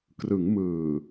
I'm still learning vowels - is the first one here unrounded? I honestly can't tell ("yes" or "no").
yes